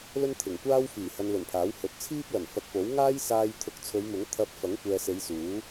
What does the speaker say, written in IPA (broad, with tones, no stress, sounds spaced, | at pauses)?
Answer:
l ɵ˥ n t̪ʰ ɪ˨˩ ŋ kʷ aː˥ w f iː˨˩ h ɐ˧ n l ɵ˨˩ n pʰ aː˨˥ w h ɵ˨˥ t̚ t͡sʰ iː˥ p̚ l ɐ˨˩ n f ɐ˨ k̚ p o˨˥ w ŋ aː˥ j s aː˧ j t̪ʰ ʊ˨ k̚ t͡sʰ ɵ˨˧ ɥ m ʊ˨˥ ŋ t̪ʰ ɐ˧ p̚ f ɐ˨˥ ŋ kʷ ɛː˨ s e˨˧ j s uː˨˥